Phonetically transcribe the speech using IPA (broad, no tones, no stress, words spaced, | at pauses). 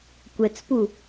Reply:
kʷɛt͡spu